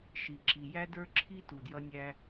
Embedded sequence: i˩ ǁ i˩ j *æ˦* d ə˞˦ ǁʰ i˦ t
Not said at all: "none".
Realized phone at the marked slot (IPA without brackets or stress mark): æ˦